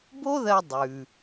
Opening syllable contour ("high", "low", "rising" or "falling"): high